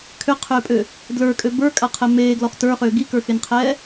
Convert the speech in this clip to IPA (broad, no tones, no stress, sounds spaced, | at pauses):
kʰ ʏ qʰ ʏː pʼ ø | d l ə˞ kʼ ø b ə˞ kʼ a qʰ ɛ m eː ɡ l ɔ χ t ə˞ χ ʏː ɡ i k ə˞ x e n qʰ ɛː